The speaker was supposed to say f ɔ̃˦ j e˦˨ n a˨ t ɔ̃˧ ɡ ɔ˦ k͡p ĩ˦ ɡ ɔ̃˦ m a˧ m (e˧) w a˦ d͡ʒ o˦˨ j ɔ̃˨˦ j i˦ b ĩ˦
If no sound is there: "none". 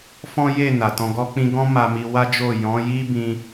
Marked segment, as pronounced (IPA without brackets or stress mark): i˧